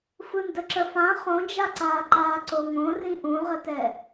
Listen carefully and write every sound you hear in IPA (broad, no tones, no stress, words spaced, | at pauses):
fɯndəǁəfã χõd͡ʒaǀaːǃaː ǀoŋõrĩ ʔũʁətɛ